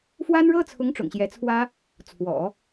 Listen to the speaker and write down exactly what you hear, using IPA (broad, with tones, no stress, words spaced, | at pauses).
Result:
fwa˥nɻɤ˥t͡sʰʊ˧˥ŋ ʈ͡ʂʊ̰˨˩ŋɕjɛ˧˥t͡sʰwä˥ | t͡sʰwɔ̰˨˩˦